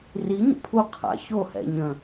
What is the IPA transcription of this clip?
r i ɲ ə̰ pʰ u qʰ a̰ ç o h ɛ̰ ɲ ə̃

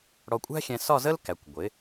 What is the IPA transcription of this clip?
ɽ ɔ˧ kʷʼ æ̤˥ xʲ ɛ̃˧ s ɒ˥˧ z ə˥ l k æ˩˧ kʷ ɡʷ ɪ˩˧

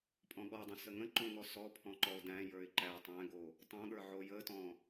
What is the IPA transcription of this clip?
pʼ ɔ̃ ɠ ɔ dˤ ə̃ s ə ŋ ə̃ ǃ õ ŋ ɔ s ɔ pʰ ɔ̃ ǃ ɔ ʊ̯ d æ̃ j ə˞ ɪ̯ ǃ æ tˤ æ̃ ɡ o | tˤ õ ɠ ə˞ ʕ o j ə t ɔ̃

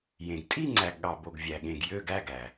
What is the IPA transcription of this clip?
j ẽ˩ ɡ tʼ i˥˧ ŋ͡ǀ æ˩ ɡ ɠ ɑ˩ b o˩ ɡ vʲ æ˩ ɠ ẽ˩ ɡ j ø˥˧ ɡ æ˥˧ ɡ æ˩

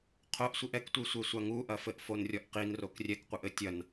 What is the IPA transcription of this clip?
qʰ o ʔ sʷ i ʔ ɛ k tʷ i sʷ e sʷ a ŋ u ʔ ɐ f ɘ ʔ f o n rʲ ɔ ʔ q i n r o k rʲ ɛ k qʷ ɘ ʔ ɘ tʲ ɐ n

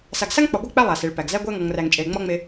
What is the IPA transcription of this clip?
s a˨ ɡ s a˦ ŋ k͡p ɒ˨ ɡʷ a˦ k͡p æ˦ lˠ a˨ s e˨ ɭ p æ˨ ɡ z æ˦ ɡʷ æ˦ ŋ ɔ˨ ŋ r æ˨ ŋ t͡ʃʼ e˨ l ŋ͡m ɒ˦ ŋ͡m e˦

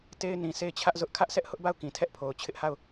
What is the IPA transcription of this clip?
t e˦ ɪ̯ n ĩ˨ sʰ e˦˨ ɪ̯ t͡ɕʰ ä˦ ʔ z ʊ˦ ʔ kʰ ä˦ ʔ s ɛ˦ ʔ h ʊ˦ ʔ b a˦˨ ʊ̯ k ĩ˨ tʰ ɛ˦ ʔ pʰ o˨ ʊ̯ t͡ɕʰ ɪ˦ ʔ h a˦˨ ʊ̯

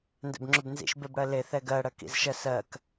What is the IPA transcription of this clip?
n d ɛ̰ b ŋ͡ǁ ʏ b n z ḭ ʃ b e b ɽ ɜ l e θ ɛ ɡ ɜ ɽ ɜ k ḭ z ʃ ɜ s ɜ k

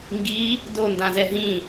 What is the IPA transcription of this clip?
ŋ ɡ i | d o n d ã z ɛ ɦ ĩ

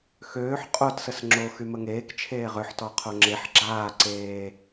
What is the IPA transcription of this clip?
x øː ħ qʼ o t s ə s ŋ͡ǁ o x y m ə ŋ eː k t͡ʃʰ eː ʁ ø ħ t ɔ qʰ o ŋ͡ǁ e ħ ɡ͡ǁ aː ǀ eː

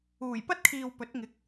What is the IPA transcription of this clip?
uː˨˩ j p ɐ˥ t̚ kʰ iː˨ w p ɵ˨˥ t̚ ŋ ɪ˨˥ k̚

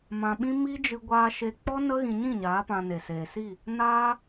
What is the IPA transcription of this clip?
m ã˧ ɓ ĩ˦ m i˦ d͡ʒ ɨ˧ ɡʷ aː˧ ʃ e˧ k͡p ɔ˦ n ə˦ ɣ ĩ˧ ɲ ĩ˦˨ ɲ aː˨˦ p ã˧ n e˨ s eː˨ s i˦˨ | n aː˦

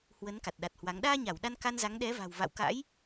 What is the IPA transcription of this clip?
h w ə˨˦ n k a˨˩ t̚ ɗ a˨˩ t̚ h w a˨˦ ŋ ɗ aː˧ ɲ a˧˩ w ɗ a˧ n k a˧ n z a˨˦ ŋ ɗ ɛ˨˦ v a̤˨˩ w v a̰˧˨ w k a̰˧˥ j

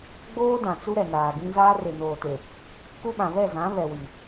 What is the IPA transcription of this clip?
ɡ͡b oː˦ d ã˨ t͡s u˦ ɾ ɛ˨ n aː˨ ɡ ĩ˦ z aː˦ r e˨ n oː˨ t e˨ | k u˦ ɓ ã˨ β ɛ˦˨ z ã˨˦ β ɛ˨ w i˨

